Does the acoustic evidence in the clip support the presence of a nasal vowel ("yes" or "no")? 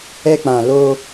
yes